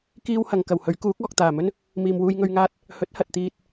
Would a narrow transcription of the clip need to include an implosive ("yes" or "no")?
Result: no